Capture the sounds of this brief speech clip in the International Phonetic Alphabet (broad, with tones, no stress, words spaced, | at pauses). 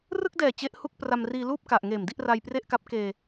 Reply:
rɯ˥˩k̚dɛː˨˩ t͡ɕe˦˥ʔhu˥˩k̚pra˧m riː˧luː˥˩p̚ka˨˩ʔŋeː˨˩m di˥˩ʔra˧jpre˥˩ʔka˦˥p̚ keː˧